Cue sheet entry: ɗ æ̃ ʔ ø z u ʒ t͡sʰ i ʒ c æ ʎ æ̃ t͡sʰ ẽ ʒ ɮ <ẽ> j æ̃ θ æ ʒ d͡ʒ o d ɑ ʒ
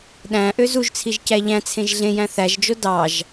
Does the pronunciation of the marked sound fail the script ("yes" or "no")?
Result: no